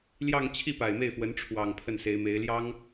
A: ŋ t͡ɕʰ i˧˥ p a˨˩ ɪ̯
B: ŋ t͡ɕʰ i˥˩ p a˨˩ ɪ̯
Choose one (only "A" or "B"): B